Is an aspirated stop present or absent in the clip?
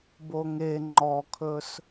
present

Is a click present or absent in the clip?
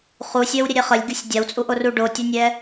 absent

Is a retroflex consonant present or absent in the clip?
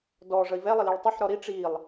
present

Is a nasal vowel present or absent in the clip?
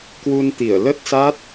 absent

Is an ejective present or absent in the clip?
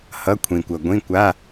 absent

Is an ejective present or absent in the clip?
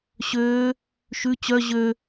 absent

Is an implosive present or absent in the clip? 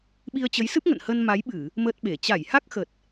present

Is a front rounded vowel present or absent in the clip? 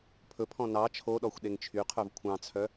present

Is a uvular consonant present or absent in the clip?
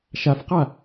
present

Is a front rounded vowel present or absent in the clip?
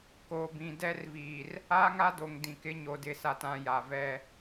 absent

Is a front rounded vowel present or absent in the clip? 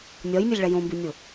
absent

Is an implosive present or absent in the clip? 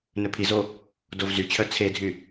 absent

